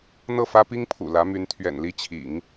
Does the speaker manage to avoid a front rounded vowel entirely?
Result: no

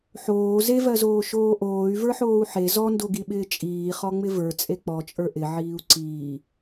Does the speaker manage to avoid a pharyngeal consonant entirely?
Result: no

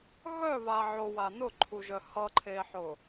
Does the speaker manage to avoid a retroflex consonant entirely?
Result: yes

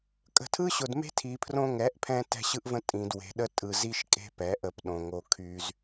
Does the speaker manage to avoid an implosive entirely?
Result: no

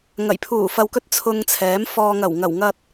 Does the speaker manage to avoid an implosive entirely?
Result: yes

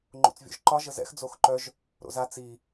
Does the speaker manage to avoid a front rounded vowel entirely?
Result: no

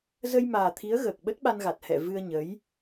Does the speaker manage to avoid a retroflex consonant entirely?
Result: yes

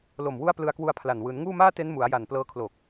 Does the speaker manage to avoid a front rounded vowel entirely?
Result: yes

